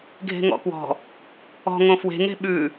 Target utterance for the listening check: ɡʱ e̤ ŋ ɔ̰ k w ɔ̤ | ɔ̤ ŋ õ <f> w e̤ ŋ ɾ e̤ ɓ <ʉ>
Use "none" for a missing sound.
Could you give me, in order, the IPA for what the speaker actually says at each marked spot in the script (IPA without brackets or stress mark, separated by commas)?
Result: f, ʉ